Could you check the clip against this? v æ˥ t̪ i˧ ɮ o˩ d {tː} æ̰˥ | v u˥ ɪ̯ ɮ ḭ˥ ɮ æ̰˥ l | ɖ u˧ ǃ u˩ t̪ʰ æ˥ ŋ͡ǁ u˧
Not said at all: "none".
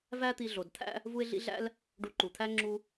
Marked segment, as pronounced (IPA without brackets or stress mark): t̪ʰ